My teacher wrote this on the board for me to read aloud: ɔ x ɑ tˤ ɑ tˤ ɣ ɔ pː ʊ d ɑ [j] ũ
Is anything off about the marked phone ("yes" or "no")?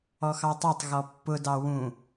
yes